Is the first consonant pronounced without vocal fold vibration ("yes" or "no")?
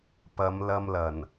yes